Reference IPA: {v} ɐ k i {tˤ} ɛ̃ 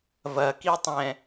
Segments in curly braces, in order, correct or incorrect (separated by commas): correct, correct